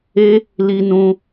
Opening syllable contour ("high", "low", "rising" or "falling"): high